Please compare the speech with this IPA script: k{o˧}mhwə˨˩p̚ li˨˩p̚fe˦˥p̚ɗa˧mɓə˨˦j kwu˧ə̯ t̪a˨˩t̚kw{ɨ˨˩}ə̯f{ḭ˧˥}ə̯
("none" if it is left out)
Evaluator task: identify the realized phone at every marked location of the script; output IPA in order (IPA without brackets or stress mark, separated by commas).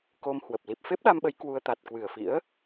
o˧, ɨ˨˩, ḭ˧˥